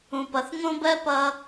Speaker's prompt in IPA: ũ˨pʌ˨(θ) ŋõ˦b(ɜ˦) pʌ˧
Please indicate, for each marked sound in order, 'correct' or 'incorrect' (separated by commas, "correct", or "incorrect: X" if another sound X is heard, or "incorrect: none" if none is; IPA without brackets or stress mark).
correct, correct